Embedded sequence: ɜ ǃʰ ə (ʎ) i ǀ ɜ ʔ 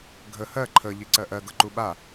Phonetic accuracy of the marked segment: correct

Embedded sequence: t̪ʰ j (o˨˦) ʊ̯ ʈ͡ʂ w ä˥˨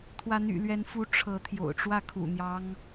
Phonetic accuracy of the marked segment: incorrect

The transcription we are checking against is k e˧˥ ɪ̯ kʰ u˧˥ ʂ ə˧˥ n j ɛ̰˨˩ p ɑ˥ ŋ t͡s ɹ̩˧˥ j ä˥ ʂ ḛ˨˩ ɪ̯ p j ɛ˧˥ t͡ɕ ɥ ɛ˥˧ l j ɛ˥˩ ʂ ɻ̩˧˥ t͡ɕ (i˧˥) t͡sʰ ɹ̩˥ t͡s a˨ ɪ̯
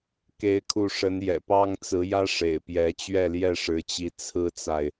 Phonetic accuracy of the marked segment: correct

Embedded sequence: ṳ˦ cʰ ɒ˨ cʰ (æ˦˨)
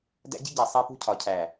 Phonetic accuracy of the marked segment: incorrect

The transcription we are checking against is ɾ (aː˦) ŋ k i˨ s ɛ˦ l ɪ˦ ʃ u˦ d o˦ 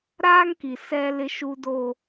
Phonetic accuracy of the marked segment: correct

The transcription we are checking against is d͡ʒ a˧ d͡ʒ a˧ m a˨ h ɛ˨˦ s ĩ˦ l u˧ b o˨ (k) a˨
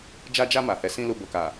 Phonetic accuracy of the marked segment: correct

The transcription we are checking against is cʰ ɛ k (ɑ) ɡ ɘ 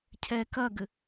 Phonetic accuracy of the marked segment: incorrect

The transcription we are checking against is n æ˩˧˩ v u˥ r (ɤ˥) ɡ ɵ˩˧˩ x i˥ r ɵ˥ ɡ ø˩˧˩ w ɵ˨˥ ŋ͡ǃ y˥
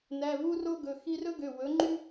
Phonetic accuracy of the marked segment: incorrect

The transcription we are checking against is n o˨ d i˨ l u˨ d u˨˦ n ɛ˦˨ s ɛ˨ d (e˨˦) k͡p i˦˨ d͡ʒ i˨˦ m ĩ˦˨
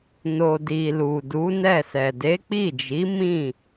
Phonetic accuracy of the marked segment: correct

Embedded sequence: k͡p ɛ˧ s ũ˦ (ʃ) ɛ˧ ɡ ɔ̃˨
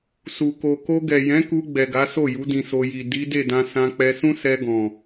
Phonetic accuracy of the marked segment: incorrect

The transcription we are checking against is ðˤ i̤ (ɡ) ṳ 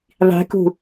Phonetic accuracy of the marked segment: incorrect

